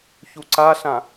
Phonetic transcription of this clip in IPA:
çuǀaɬã

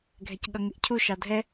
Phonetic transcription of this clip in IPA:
ɡʱɛcɠʌŋɪʔcʰuʃ ɑdʱɛ

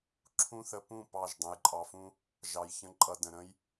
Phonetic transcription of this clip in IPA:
ǁʰũ˦θə˧pũ˦˨ pɑ˦˨ʒdˤə̃˧j ǃʼɑ˨fũ˧ | ʒɑ˨jçə̃˧ǃʼʌ˨ də̃˨ɾə̃˦j

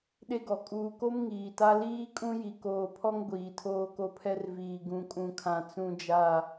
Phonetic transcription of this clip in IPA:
ɗe˦ɡɔ˨ kʼuː˨ko˦m ŋiː˨ta˦ liː˦kʼũ˦ji˨ koː˨pʰɔ˦ŋ ɡʷiː˨tʰoː˦ko˦pʰɛ˦r viː˨ ɡũ˨kʼũ˨kʰã˨ t͡sũ˦d͡ʒa˦˨

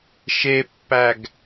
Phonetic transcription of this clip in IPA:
ʃepːæɡ

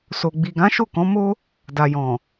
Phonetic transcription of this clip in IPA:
so˨ ɡ͡bi˨ɡã˨˦ ʃo˦˨kɔ̃˨˦mo˦ | da˨jɔ̃˨

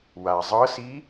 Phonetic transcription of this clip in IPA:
wa zˤɤsi

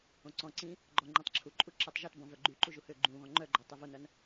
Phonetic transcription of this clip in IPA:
õǀɔ̃ǀĩː | ɡ͡ǃɔ ŋ͡ǃĩtˤǁʰuǃʼu ǁetˤʒotbɔ̃ vœɡ͡ǃyǃu ʒuhʏːɡ͡ǃũːɣɔ̃ ŋ͡ǃœɡ͡ǃœ tˤivonɐn

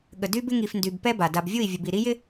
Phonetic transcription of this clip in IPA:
ɠə˨dy˦bɪ˦ ŋi˨fndy˨b pɛ˦ba˨ da˨bvʲu˦˨i̯ vʲə˨bi˨ ɾi˦jɪ˦

